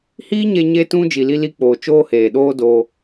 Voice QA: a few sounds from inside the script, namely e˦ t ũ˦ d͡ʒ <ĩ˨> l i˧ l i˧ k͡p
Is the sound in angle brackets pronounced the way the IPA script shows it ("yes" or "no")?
no